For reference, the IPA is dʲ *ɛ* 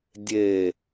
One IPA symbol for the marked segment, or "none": e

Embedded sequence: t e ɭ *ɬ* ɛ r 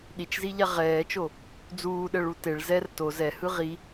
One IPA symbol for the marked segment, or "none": z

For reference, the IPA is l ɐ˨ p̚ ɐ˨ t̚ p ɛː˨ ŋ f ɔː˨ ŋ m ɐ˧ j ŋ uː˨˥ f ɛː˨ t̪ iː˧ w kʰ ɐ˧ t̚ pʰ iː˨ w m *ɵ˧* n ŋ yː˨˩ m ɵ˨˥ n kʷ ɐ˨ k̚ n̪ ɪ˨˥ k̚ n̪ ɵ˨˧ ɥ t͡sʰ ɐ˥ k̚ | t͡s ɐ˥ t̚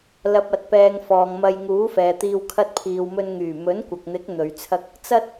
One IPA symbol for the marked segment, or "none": ɵ˧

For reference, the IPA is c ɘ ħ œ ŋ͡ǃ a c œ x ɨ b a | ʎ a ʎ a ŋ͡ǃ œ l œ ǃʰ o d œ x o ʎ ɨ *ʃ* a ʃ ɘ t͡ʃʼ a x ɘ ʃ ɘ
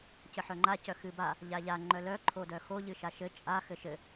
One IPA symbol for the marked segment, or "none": ʃ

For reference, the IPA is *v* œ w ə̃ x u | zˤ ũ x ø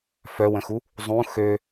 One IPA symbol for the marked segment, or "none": f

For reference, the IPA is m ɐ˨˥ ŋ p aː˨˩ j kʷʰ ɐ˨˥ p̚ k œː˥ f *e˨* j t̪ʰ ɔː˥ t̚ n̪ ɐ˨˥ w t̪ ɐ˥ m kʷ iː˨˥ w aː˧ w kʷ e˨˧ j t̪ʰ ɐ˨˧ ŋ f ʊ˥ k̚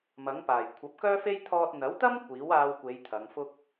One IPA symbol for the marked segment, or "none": e˥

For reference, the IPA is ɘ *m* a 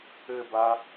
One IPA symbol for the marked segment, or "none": b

